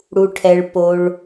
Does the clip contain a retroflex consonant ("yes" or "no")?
yes